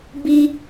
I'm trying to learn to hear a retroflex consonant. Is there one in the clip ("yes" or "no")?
no